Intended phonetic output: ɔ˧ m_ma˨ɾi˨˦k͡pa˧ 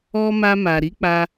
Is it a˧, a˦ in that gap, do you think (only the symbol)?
a˧